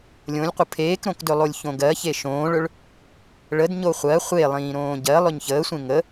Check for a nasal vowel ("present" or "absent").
present